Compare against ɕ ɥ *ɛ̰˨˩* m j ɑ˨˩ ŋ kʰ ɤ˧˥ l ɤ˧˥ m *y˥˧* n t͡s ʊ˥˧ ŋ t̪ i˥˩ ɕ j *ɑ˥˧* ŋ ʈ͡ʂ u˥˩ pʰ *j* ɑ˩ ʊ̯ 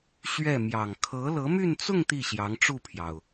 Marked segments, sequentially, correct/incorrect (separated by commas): incorrect, correct, incorrect, correct